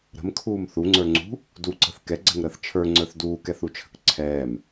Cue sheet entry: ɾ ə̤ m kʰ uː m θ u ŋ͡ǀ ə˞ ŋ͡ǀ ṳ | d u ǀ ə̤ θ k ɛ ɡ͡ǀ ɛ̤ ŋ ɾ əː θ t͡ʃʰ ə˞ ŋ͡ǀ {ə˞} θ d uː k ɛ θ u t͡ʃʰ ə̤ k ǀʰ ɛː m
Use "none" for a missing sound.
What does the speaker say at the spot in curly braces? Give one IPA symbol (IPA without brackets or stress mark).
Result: ə˞